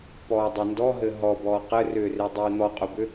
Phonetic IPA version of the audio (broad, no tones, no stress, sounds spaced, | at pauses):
p ɔː dˤ ɵ n d ɔ ɦ ɘ ɦ ɔ b ɔː q ɘ r ʏː r e dˤ iː n̪ ɔ qʼ ɵ b ʏ